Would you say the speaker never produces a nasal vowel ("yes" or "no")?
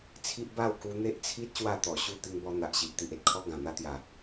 no